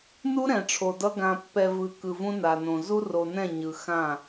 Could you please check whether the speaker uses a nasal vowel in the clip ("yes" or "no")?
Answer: yes